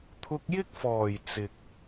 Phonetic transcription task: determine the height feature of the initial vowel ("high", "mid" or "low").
high